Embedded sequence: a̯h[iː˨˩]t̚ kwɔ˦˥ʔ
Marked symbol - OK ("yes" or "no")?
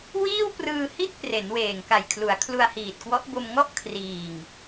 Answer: yes